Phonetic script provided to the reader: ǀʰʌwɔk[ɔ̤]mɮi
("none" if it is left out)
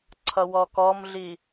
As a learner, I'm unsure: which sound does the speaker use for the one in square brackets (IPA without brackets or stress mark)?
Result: ɔ